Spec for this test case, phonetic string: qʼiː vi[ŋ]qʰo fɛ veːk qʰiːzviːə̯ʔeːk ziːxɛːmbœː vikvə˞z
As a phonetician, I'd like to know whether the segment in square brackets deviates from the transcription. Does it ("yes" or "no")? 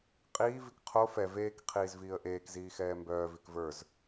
yes